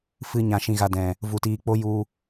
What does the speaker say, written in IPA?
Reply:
fɨ˦ ɲã˧ʃĩ˧ɣa˧dɛ̃˨ | vu˧tiː˧k͡po˦ ju˧

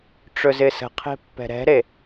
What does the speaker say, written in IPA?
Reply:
ʈ͡ʂɵzɪsə̤qʰe̤ pːɛ̤ɾɛ̤ɾe

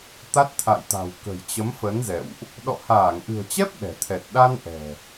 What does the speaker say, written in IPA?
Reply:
t̪a˦˥t̚t̪ʰa̰˧˨jt̪a̤˨˩w kə̤˨˩jt͡ɕə˨˦mfə˨˦nzɛ̰˧˨wʔ | ɗɔ̰˧˨haː˧˩ŋʔɨ̤˨˩ə̯t͡ɕɛ˦˥p̚ ɗɛ̤˨˩t̪ʰɛ˨˩t̚ ɗa˧n ʔɛ̤˨˩

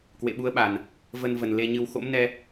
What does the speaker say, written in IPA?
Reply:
kwḛ˧˨ɓu˨˦ə̯ɓa˨˩n | və˧nvə˨˩n le˧ɲɨ˧w xo̰˧˥mnɛ˧

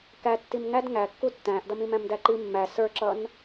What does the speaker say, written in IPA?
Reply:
kæ tːimŋæd ŋækːu tːæ̃ːʔdʌmĩmæ̃m dæǃi mːæ sə˞ǁʌn

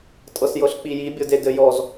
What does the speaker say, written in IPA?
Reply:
tʼɤsjɤɬk͡piji bʲɤdedɘjɔz

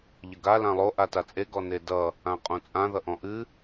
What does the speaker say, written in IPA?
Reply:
ʎəɡa lãlˠo ʔatat͡sʼe ɡɔnedʌ | ãqʼõt͡sʼã ðʌʔɔ̃ʔɨ

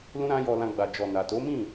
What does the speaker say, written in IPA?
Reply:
lũ˦ɾã˦jɔ˧lã˧ ɡ͡ba˨d͡ʒɔ˨na˨ to˨˦mĩ˦˨

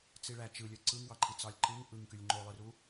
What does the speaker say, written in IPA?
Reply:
t͡siɭæ t͡ʃɯlʲø ǀɯŋwɑǃʰi t͡sɑlʲǃɯŋ ʔɯŋkylʲ ŋ͡ǃolˠɯru

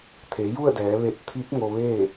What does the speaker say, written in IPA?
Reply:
t̪ʰe˩˧ju˥˨ə̯dɛː˩˧ ʋe˧˩t̚t̪ʰi˧˥p̚ŋo˧ ʋeː˥˨

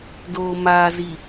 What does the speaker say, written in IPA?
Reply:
doː˨maː˨zi˨

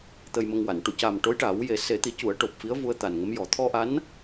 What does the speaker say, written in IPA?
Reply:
t̪ə˧jmə˧ŋwa˨˩˨n ʈu˨˩˨ca˨˩m ʈo˧˥jʈa˨˩˦w je˨˩˦se˨˩˦t̪i˨˩˦cu˨˩˦ə̯ ʈo˨˩p̚fi˧˥ə̯ vu˧ə̯t̪a˨˩nŋə˧˥mjɔ˨˩˦ t̪ʰɔ˧ʔa˧˥n

